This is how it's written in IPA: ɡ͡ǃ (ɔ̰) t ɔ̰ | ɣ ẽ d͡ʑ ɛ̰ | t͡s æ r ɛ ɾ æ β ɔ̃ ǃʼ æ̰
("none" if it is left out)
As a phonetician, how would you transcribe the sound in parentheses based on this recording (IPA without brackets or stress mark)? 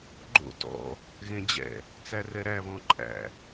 o̰